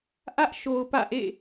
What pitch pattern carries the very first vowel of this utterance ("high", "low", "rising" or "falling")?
high